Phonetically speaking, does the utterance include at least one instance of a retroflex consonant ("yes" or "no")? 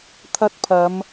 no